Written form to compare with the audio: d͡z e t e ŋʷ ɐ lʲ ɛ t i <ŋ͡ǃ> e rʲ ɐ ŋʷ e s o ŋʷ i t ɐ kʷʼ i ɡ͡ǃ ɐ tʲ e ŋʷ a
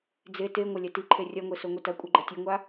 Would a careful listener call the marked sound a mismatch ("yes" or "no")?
yes